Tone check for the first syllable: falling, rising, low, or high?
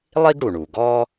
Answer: high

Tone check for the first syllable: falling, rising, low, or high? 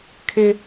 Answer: high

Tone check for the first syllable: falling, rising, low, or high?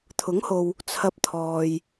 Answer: rising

